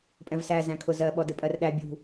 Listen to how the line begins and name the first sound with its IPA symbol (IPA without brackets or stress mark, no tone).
pʼ